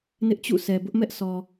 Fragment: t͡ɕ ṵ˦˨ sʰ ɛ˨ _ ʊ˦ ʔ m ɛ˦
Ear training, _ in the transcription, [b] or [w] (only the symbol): b